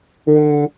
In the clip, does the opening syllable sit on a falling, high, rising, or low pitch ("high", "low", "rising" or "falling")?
high